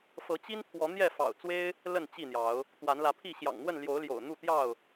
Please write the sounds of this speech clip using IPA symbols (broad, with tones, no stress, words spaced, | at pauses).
fɤ˨˦ t͡ɕi˦npʰwɔ˨˦ n̪jɛ˥˨fɑ̰˨˩ʊ̯t͡swe˦ɪ̯ | lə˥˨n t͡ɕi˥˨n̪jɑ˨˦ʊ̯ | t̪wa˨˦nlä˨˦pʰi˥˨ ɕjɑ̰˨˩ŋn̪wə˥˨n ljo˨˦ʊ̯ljo̰˨˩ʊ̯ n̪u˥˨t̪jɑ˥˨ʊ̯